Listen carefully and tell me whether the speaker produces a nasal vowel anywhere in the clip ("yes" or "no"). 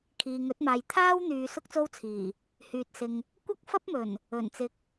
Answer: no